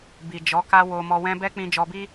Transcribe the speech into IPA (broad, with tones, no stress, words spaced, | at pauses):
bi˨d͡ʒɔ˨˦ka˦ wo˧mɔ˧wɛ̃˦ bɛ˦k͡pĩ˧ d͡ʒɔ˧bi˦